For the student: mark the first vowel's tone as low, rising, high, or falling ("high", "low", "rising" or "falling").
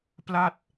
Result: falling